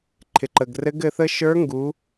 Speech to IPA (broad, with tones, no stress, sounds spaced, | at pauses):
ǃʰ ɪ˩ ǃ ə˩ ɡ r ɘ˧˥ ɡ ɘ˧ θ ə˥ ʃ ə˞˧˥ ŋ ɡ u˩˧